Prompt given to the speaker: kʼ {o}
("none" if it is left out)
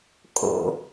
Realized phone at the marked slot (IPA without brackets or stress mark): o̰